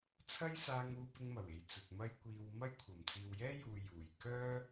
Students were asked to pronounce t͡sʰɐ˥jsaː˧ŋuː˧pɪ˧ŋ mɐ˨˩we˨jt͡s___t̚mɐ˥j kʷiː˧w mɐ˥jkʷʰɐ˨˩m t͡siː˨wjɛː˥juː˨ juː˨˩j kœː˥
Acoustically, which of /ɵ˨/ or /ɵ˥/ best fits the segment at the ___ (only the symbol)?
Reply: ɵ˨